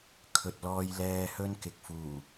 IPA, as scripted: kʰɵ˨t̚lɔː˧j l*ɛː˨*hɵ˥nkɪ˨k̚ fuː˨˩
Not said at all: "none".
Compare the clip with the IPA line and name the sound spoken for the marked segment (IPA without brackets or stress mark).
ɛː˧